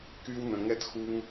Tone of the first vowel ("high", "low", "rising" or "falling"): high